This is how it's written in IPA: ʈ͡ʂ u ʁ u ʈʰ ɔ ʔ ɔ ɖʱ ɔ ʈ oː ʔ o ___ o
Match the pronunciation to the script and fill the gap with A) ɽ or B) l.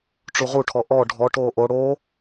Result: A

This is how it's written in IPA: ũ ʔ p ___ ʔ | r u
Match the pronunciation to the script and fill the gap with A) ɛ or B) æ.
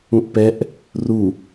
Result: A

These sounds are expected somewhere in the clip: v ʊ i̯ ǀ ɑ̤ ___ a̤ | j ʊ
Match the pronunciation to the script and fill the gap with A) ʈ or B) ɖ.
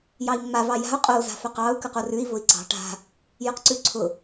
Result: A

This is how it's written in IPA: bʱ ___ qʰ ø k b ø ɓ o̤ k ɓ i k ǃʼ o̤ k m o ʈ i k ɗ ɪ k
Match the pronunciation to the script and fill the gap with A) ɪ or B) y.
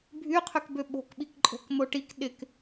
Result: B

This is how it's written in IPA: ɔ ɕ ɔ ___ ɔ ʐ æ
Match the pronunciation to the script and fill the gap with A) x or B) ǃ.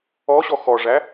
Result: A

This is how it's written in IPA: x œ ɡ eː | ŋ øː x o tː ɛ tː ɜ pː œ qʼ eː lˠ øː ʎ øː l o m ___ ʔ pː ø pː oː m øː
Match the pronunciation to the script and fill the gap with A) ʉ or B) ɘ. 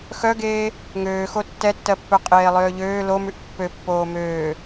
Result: A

